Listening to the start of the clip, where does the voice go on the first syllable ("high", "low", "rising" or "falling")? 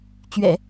low